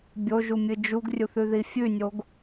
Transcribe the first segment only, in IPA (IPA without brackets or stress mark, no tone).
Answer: bʲ